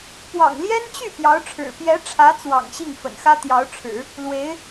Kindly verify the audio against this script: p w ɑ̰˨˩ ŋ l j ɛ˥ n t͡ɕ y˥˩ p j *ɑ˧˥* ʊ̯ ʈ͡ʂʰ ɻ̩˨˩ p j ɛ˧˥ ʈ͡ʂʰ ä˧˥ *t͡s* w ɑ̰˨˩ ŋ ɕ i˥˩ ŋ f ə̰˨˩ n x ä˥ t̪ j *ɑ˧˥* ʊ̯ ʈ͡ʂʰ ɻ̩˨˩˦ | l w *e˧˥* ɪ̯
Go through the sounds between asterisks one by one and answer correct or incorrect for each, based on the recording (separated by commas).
correct, correct, correct, correct